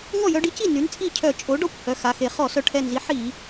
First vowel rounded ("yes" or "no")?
yes